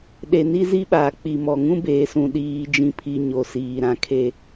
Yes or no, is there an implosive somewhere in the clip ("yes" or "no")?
yes